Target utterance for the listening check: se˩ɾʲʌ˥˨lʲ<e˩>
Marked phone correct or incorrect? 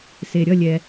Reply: incorrect